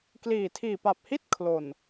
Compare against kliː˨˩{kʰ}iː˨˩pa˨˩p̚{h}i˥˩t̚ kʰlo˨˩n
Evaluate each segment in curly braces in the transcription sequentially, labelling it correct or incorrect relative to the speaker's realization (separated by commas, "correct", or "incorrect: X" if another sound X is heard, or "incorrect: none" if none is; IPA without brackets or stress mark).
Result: incorrect: tʰ, correct